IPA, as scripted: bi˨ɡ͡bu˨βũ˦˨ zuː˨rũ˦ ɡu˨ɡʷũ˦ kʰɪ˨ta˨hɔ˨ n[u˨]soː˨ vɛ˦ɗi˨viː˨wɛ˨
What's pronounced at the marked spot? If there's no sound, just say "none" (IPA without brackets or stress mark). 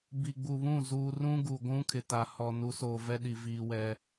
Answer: u˨˦